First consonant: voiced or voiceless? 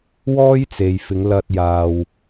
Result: voiced